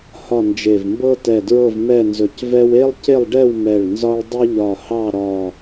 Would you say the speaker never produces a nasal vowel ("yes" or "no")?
yes